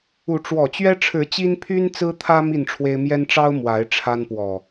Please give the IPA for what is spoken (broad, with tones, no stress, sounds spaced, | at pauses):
u˨˦ ʈ͡ʂ w ɔ˨˩ t͡ɕ ɥ ɛ˦ ʈ͡ʂʰ ɻ̩˨˦ t͡ɕ i˦ n pʰ y˦ n t͡s ɹ̩˦ t̪ʰ ä˦ m i˥˨ n ʈ͡ʂʰ w e˦ ɪ̯ m j ɛ˦ n ʈ͡ʂ ɑ˦ ʊ̯ m w a˨˦ ɪ̯ ʈ͡ʂʰ a˦ n p w ɔ˨˩